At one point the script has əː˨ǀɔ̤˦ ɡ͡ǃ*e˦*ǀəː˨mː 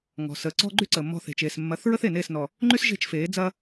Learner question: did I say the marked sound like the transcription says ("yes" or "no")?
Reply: no